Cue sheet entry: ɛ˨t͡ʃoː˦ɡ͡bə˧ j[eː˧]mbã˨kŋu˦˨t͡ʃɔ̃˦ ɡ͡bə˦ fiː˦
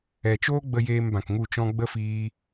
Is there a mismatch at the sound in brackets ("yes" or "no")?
no